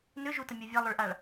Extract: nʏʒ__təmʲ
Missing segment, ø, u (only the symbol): u